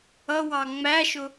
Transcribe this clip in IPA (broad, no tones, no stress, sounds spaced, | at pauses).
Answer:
ʌ w ɑ ŋ͡m æ ʃ ʊ